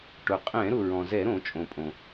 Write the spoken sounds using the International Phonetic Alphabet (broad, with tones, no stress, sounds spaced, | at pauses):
ʈ ʊ˩ qʼ ɛ̃˧˩˧ ɾ ʊ˩ ɹ ɔ̃˩ z ɛ˧˩˧ ɾ õ˧˩˧ t͡ʃʼ õ˩ pʼ õ˩